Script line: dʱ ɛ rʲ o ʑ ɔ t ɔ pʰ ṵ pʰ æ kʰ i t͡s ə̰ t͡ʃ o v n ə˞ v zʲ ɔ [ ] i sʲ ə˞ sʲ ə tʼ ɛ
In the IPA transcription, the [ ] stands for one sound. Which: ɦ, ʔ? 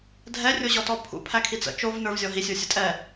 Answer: ɦ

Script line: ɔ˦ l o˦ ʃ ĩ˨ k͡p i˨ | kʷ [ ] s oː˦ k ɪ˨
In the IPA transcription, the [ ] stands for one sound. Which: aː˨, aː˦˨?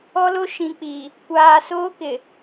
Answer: aː˨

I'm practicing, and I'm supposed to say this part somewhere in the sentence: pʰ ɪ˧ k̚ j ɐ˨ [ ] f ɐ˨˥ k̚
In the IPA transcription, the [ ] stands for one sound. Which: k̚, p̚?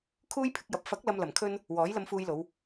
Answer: p̚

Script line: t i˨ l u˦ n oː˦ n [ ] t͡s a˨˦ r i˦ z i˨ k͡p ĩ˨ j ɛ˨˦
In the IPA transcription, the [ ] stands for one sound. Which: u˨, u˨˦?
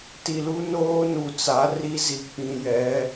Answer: u˨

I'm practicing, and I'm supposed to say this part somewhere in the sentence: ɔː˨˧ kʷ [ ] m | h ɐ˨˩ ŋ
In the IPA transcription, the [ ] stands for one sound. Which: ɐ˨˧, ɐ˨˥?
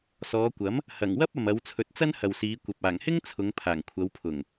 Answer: ɐ˨˥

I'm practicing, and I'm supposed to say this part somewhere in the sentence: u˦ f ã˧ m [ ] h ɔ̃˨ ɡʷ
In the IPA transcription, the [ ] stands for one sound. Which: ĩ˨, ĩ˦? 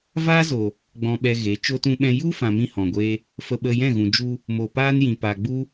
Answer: ĩ˦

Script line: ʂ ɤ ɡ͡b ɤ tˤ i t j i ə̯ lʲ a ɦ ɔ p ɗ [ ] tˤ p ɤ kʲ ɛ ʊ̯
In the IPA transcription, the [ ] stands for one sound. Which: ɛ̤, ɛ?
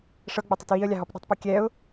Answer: ɛ̤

